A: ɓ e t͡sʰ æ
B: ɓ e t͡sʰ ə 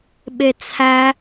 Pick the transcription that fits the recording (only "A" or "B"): A